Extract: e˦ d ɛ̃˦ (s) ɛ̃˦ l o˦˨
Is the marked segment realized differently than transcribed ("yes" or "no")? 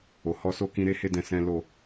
no